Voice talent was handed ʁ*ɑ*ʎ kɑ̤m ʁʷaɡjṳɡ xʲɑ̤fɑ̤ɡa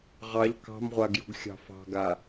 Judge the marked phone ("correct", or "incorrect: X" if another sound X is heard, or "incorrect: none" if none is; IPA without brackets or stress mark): correct